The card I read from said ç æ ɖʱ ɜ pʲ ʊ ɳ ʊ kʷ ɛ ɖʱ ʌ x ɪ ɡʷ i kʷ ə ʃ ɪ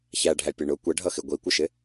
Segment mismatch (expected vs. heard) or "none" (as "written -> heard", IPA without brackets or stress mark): ɜ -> æ